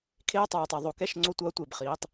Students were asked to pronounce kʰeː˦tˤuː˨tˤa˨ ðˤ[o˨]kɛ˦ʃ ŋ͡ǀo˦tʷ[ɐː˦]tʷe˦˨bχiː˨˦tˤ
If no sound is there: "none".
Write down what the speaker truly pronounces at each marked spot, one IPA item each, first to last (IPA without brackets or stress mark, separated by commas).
o˨, ɐː˦